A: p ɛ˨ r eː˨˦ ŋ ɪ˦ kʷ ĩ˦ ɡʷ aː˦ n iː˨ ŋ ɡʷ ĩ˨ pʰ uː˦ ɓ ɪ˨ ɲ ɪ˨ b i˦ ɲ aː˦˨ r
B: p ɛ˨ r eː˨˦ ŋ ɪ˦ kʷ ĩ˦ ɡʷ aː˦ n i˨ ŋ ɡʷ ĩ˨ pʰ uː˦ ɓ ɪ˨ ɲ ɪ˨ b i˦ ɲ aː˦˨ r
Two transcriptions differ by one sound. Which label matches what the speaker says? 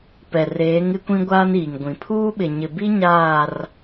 A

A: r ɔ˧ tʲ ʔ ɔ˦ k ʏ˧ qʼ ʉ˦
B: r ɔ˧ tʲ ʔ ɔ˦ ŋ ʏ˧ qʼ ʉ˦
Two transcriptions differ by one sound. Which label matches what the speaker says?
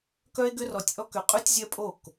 A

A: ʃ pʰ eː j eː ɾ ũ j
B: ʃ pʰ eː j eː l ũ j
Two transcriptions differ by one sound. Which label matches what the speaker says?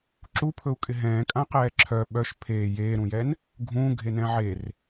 A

